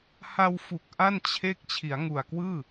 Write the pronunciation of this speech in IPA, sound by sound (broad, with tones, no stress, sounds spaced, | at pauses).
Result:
h a˧ w f u˨˩ k̚ ʔ a˥˩ n t͡ɕʰ e˦˥ k̚ t͡ɕʰ i˩˦ a̯ ŋ u˨˩ a̯ k w ɯː˥˩